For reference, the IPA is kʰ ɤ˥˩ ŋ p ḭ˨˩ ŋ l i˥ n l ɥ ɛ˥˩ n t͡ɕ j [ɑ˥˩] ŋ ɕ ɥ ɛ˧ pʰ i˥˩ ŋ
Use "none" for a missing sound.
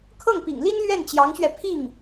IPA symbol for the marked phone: ɑ˧˥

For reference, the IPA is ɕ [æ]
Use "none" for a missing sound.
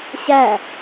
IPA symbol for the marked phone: æ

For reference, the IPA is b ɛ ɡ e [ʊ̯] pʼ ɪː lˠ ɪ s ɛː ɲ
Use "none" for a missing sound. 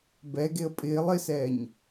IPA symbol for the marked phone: ə̯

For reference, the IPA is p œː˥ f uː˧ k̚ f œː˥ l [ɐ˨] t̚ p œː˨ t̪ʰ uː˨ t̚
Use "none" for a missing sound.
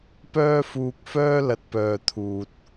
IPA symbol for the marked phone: ɐ˨˥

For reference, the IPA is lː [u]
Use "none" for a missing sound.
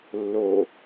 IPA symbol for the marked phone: o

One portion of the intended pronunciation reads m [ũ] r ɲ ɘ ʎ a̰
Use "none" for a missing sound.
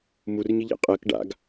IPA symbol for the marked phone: u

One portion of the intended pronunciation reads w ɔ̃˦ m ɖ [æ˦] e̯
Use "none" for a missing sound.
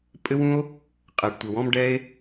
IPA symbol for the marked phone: ɛ˦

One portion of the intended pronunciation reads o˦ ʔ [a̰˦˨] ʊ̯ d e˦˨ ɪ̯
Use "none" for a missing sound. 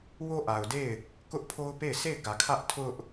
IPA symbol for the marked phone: a˨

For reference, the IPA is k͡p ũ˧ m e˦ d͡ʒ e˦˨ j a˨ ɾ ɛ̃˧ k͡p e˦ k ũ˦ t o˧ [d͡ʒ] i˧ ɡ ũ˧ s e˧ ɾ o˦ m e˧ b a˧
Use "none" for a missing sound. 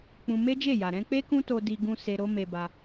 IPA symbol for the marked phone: d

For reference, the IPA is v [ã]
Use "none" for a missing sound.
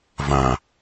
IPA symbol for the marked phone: ã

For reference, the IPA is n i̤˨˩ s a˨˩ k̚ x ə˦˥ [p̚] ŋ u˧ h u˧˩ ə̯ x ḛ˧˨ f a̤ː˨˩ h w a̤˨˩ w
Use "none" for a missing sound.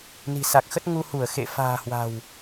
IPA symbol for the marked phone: t̚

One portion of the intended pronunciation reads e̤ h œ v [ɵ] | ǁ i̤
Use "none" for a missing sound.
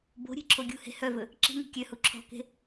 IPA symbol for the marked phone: ɵ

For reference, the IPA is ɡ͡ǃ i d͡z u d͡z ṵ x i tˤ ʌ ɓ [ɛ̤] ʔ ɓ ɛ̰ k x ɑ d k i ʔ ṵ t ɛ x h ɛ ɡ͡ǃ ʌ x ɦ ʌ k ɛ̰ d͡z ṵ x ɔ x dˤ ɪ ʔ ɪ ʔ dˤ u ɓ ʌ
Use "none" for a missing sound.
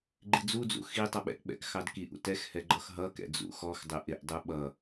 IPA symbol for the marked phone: ɛ̰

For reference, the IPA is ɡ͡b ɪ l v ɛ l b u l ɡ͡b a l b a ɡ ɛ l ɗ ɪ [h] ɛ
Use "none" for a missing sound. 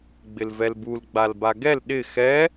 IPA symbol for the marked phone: x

